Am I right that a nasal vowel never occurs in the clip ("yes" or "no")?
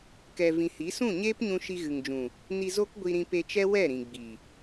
no